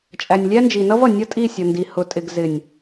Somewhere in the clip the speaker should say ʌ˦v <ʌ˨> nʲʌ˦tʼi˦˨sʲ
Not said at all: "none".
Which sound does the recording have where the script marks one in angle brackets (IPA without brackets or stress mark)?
ʌ˨